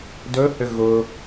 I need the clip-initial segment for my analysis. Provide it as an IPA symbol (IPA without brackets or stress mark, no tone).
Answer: d